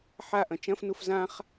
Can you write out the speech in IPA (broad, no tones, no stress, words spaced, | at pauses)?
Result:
ħaʔɐ̃ t͡ʃɐ̃fnuf zãχ